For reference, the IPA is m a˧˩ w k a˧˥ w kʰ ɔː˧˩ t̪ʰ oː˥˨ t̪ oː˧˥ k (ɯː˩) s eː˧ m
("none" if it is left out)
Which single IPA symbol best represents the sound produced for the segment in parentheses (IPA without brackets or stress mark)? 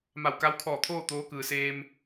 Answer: ɯː˩